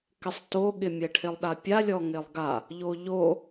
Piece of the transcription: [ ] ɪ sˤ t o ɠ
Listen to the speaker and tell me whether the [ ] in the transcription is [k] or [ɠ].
k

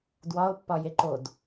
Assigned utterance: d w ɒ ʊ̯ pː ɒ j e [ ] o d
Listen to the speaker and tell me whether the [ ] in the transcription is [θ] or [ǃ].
ǃ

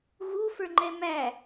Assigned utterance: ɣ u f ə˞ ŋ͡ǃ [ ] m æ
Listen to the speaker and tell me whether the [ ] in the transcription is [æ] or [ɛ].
ɛ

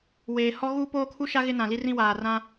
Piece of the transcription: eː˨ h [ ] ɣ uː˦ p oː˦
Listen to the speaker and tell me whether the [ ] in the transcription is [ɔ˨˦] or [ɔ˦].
ɔ˦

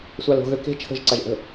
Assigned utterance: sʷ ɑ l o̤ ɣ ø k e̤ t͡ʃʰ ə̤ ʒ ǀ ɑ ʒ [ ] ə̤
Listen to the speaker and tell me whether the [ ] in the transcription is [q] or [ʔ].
ʔ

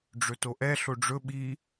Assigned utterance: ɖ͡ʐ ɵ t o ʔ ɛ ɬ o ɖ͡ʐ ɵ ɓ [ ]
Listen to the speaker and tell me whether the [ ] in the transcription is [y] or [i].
i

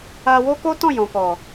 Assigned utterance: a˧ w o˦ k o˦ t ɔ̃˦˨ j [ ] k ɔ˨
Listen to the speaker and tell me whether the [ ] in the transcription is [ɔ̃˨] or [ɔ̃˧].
ɔ̃˨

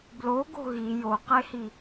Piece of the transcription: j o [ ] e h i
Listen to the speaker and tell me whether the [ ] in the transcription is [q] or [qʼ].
q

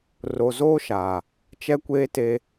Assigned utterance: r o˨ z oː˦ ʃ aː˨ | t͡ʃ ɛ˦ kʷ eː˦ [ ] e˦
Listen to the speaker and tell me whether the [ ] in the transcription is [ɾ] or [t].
t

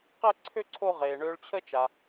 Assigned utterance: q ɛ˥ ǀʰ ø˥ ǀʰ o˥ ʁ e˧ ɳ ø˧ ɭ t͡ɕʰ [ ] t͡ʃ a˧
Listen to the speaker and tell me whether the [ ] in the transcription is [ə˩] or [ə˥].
ə˥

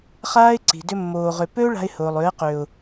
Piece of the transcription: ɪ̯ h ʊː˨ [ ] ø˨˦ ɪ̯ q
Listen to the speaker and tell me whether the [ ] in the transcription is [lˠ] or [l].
lˠ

